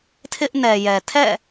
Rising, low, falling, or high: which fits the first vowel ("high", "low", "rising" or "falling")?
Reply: high